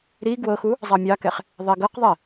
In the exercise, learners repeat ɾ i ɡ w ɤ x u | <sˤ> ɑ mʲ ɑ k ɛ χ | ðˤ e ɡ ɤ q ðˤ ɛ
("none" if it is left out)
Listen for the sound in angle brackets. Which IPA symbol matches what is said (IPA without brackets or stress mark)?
zˤ